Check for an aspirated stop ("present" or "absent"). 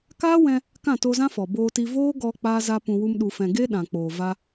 absent